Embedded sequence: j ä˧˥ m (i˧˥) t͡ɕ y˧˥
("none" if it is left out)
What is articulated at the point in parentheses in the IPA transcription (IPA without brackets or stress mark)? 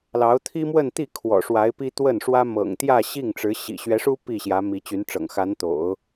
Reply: i˧˥